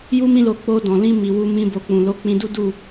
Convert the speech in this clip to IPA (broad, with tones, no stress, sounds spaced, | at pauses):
j u˧ m ĩ˧ l o˨ k͡p o˧ d ɔ̃˨ l ĩ˧ m i˨ w u˧ m ĩ˧ b o˨ k͡p ũ˨ l o˧ k͡p ĩ˧ d u˦ d u˦˨